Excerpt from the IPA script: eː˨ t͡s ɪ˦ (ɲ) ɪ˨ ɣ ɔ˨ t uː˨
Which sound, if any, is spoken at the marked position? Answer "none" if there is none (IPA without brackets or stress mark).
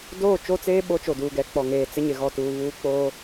ɲ